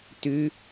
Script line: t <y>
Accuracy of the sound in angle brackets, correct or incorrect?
correct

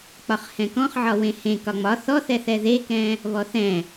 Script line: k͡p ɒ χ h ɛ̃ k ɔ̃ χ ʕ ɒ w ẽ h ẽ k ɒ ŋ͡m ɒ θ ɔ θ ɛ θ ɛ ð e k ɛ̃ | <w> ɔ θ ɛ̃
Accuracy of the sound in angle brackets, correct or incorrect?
incorrect: β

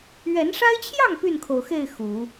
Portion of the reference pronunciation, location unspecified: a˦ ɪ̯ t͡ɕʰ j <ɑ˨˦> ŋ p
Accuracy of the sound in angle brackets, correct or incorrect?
incorrect: ɑ˥˨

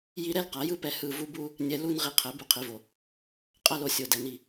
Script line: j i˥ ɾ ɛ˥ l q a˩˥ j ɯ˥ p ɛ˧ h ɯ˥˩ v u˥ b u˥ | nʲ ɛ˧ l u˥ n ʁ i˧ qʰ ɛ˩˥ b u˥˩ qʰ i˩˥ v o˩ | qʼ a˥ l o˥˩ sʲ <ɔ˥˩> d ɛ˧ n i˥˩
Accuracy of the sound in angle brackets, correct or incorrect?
incorrect: o˥˩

